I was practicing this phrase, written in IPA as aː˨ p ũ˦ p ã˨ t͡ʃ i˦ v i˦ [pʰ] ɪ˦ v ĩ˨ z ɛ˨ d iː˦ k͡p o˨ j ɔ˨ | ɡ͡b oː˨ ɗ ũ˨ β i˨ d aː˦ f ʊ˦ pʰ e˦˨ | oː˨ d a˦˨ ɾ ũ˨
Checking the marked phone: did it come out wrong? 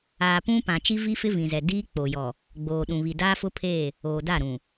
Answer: yes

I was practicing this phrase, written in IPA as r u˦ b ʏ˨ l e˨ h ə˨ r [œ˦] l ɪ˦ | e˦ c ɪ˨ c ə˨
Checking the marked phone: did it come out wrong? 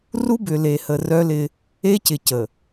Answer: no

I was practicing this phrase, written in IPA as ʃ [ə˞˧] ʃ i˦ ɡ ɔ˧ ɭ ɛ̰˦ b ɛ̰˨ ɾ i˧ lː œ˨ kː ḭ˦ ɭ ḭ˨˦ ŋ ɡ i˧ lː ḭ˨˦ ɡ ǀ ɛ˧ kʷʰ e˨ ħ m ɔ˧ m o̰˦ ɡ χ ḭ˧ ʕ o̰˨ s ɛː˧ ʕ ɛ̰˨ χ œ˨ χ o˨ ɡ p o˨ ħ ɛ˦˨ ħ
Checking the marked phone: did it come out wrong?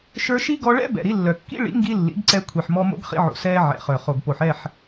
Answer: no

